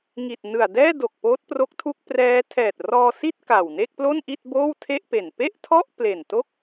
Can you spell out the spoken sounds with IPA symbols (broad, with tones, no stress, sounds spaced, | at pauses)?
ŋ i˨˩ t̚ n ɯ˨˩ a̯ d ɛː˥˩ d o˨˩ k̚ p oː˦˥ t̚ p r o˦˥ k̚ tʰ u˥˩ k̚ p r ɛː˦˥ tʰ ɛː˨˩ t̚ r ɔː˧ s i˥˩ t̚ k a˨˩ w n e˥˩ k̚ p l o˥˩ n ʔ i˥˩ t̚ b oː˥˩ w tʰ e˥˩ ʔ p e˨˩ n p e˥˩ ʔ tʰ ɔ˥˩ ʔ p l e˨˩ n t o˥˩ k̚